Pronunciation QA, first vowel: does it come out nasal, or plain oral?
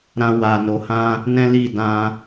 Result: nasal